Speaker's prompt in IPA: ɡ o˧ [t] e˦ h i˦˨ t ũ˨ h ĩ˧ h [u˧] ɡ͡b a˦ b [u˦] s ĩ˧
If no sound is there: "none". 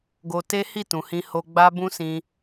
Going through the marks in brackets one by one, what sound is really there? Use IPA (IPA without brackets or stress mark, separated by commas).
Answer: t, o˧, ũ˦